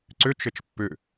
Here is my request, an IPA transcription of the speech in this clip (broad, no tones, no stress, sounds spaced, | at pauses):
ǀ ʏ t͡ʃ ə t͡ʃ pː ʏ